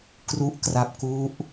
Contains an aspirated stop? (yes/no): no